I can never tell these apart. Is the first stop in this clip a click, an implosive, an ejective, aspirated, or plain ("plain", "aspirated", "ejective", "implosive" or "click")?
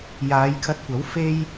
aspirated